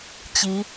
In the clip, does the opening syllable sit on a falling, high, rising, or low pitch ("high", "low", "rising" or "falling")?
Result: rising